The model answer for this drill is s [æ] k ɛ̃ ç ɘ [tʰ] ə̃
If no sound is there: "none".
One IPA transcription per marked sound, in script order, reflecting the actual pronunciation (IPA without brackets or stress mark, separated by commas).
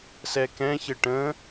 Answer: ɛ, ʈ